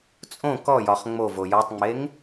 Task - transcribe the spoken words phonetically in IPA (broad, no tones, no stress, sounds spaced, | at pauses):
t͡sʼ õ k ɔ j ɒ χ ŋ͡m o v o j ɔ tˤ ŋ͡m e ŋ